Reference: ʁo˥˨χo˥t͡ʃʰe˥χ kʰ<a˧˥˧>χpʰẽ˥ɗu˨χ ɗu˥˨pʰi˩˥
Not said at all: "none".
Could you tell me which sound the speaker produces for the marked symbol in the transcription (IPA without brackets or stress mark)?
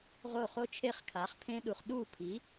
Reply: a˩˥